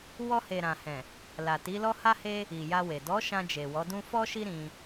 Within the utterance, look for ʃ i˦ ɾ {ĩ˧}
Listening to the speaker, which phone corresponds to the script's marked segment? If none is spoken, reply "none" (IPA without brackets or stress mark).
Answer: ĩ˧